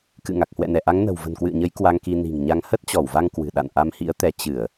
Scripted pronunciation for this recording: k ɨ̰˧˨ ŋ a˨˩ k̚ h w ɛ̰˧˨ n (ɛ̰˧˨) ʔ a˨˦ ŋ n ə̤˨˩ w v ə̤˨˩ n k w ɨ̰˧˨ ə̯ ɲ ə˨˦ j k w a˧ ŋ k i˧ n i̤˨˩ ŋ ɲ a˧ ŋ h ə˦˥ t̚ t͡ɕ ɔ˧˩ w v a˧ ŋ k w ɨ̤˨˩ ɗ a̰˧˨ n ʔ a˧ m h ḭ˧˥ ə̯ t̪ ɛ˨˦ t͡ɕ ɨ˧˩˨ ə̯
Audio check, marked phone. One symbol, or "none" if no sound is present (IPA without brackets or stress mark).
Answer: ɛ˧˩